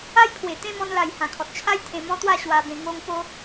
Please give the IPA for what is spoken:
a˦ j pʰ w e˨˩ t̪ ẽ˥˧ m ɔ̃˧ n l a˨˩ j h ã˨˩ kʰ ɔ˨ t̚ t͡ɕʰ a˦ j t̪ʰ ẽ˧ m ɔ̃˦ t̪ w a˥˧ ɕ w a˧ b ẽ˧ ŋ o˧ ŋ p o˦

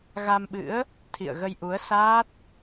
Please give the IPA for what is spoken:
ɣ a˧ m ɓ ɨ̰˧˥ ə̯ | t̪ʰ ḭ˧˨ ə̯ ɣ ə˧ j ʔ u˨˦ ə̯ s aː˦˥ t̚

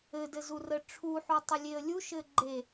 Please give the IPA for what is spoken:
ɘ d ɘ z u r ə ʈ͡ʂʰ u ħ u tˤ ə lʲ e ə̯ lʲ u ʃ ɘ ɡ͡ǃ e

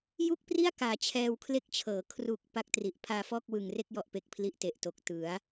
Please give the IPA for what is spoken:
j u˥˩ k̚ p r i˥˩ a̯ k aː˩˦ t͡ɕʰ ɛː˧ w kʰ l e˦˥ k̚ t͡ɕʰ ɤː˩˦ kʰ r u˨˩ k̚ p a˥˩ k̚ t r i˨˩ ʔ pʰ aː˧ f ɔː˥˩ k̚ w ɯ˨˩ ŋ r e˥˩ k̚ j ɔ˥˩ ʔ p e˦˥ k̚ pʰ l i˥˩ ʔ t e˨˩ ʔ t o˨˩ k̚ t ɯ˩˦ a̯

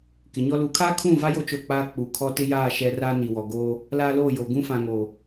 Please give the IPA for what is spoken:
k ɪ˨˦ ɲ ɔ˦ l u˨˦ kʰ aː˦ kʰ ũ˦˨ v a˦ j o˦ t͡ʃ o˦˨ k͡p aː˦ k͡p u˨ kʰ ɔ˦ t ɪ˦ j aː˦˨ ʃ ɛ˦ r aː˦ n i˨ w ɔ˨ ɡ oː˦ | l aː˦ l oː˦˨ j oː˨ ɡ ũ˦ f ã˨ ŋ oː˨

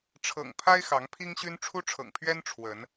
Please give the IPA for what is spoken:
ʈ͡ʂʰ ɤ̰˨˩ ŋ pʰ a˦ ɪ̯ x ɑ˨˦ ŋ pʰ i˦ ŋ ɕ y˦ n ʈ͡ʂʰ u˦ ʈ͡ʂʰ ɤ̰˨˩ ŋ pʰ ɥ ɛ˦ n ʈ͡ʂʰ w ə˨˦ n

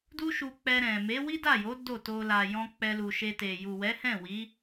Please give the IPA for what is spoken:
d u˦ ʃ u˧ k͡p ɛ˧ ɾ ɛ̃˨ m e˨˦ w i˦ d a˦˨ j o˨˦ d o˦˨ t o˧ l a˨ j ɔ̃˧ k͡p ɛ˧ l u˨ ʃ e˧ t e˨ j u˨ w ɛ˨˦ h ɛ̃˦˨ w i˨˦

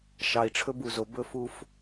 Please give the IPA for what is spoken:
ʃ ɑ˨ i̯ ʈ͡ʂʰ ɵ˦ b u˨ z o˨ b ɵ˦ f u˦ f

